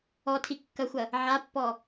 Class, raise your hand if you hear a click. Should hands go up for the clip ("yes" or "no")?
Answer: no